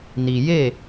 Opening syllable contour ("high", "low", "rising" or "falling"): low